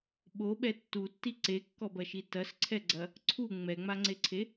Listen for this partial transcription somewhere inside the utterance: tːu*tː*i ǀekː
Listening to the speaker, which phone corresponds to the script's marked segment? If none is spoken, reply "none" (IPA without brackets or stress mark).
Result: tː